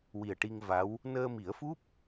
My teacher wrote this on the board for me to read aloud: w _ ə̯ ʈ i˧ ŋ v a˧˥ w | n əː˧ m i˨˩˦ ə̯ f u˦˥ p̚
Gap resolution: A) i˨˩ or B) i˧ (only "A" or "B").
A